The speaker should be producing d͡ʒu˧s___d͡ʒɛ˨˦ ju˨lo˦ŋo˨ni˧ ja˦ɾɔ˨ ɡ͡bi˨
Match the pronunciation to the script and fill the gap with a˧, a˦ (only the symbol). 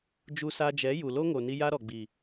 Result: a˧